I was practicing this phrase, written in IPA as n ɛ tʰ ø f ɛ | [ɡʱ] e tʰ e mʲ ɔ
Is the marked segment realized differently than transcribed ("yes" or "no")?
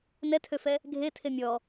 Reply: no